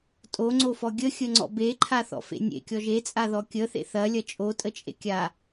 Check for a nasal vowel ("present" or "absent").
absent